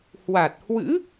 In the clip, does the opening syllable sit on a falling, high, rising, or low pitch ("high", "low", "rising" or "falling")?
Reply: low